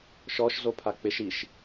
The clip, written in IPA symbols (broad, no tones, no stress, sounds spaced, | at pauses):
ʃ ɔ ʃ z o pʰ a k͡p ɪ ʃ i ʃ